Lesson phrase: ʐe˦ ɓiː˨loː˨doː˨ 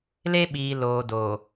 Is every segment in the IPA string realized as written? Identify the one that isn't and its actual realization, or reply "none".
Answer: ʐ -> l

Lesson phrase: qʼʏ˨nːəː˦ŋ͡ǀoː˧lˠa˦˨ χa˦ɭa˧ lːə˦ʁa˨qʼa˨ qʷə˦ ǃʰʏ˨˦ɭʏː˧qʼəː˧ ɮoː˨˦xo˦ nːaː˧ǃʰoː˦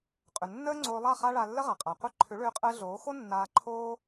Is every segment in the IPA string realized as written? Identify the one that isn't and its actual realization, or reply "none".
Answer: none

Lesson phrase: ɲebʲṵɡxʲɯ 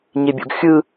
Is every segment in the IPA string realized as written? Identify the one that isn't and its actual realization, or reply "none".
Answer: none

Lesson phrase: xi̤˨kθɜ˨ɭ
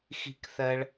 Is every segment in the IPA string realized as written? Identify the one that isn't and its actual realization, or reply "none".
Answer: none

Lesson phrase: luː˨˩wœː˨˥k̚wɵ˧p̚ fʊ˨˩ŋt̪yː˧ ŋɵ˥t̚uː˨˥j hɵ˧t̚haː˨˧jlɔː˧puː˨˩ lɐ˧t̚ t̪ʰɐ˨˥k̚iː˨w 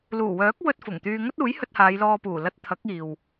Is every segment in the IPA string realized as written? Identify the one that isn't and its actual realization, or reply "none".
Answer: p̚ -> t̚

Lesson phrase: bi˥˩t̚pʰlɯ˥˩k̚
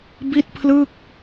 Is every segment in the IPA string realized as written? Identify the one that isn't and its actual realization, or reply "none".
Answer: none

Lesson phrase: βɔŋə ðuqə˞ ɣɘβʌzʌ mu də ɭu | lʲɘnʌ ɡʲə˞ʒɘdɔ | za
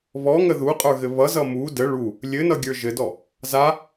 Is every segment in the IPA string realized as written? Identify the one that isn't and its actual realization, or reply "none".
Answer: q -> qʼ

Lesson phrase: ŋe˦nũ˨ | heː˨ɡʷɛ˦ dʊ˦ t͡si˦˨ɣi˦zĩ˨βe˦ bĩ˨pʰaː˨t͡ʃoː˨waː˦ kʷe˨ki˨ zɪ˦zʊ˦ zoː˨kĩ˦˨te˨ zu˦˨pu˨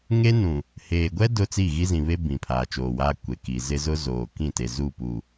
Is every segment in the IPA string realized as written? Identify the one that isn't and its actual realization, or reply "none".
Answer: none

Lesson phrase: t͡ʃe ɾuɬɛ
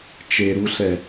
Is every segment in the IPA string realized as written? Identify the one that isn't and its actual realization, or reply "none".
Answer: none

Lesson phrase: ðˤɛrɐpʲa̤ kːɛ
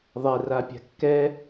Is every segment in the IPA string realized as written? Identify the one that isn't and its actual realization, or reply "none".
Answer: ɐ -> a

